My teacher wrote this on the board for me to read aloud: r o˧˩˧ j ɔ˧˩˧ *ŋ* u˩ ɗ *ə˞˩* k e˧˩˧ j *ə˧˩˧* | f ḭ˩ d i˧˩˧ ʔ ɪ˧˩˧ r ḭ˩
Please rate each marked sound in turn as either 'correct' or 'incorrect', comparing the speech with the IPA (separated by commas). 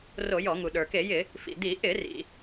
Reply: correct, correct, incorrect